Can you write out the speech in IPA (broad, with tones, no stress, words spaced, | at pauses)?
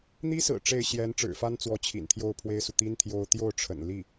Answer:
n̪i˥ sɹ̩˨˩ ʈ͡ʂe˥˩ɪ̯ɕjɛ˧˥n ʈ͡ʂɻ̩˨˩fa˥nt͡swɔ˧˥ t͡ɕʰḭ˨˩nt̪ʰjo˥˩ʊ̯pʰwe˥ɪ̯su˨ t̪i˥n t̪ʰjo˧˥ʊ̯ t̪jo˥˩ʊ̯ʈ͡ʂʰə̰˨˩n li˥˩